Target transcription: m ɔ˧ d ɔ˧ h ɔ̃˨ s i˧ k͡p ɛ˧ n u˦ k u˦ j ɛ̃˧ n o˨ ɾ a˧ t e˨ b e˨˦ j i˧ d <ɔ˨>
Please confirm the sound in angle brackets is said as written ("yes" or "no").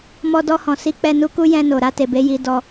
no